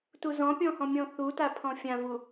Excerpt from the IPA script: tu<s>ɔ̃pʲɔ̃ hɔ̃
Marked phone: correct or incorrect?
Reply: incorrect